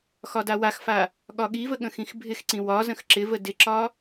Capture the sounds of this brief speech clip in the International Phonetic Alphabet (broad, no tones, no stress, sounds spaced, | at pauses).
x ɒ d a w a x f a | ɠ ɒ ɠ i v ə ɠ ə̃ x ĩ x bʱ ɪ x ǀ ĩ w ɒ z ə̃ x ǁ ɪ v ə d ɪ ǁ ɒ